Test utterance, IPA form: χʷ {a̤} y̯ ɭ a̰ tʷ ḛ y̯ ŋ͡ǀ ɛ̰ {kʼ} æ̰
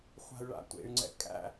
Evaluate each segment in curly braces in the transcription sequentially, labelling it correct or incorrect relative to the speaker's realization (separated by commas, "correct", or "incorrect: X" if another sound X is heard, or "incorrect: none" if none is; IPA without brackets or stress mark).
correct, correct